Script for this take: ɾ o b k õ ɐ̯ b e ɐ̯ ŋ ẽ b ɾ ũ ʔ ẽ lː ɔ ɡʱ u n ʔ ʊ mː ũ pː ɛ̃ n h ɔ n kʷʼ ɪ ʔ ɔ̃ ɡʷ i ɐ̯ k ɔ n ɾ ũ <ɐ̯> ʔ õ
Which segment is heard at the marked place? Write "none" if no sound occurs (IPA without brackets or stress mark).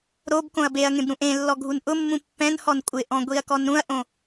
ɐ̯